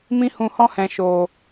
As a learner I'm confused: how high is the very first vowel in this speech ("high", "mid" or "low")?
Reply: high